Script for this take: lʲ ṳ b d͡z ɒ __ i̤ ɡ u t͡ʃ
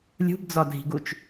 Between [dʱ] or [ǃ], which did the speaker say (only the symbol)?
dʱ